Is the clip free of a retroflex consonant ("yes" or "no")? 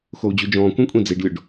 no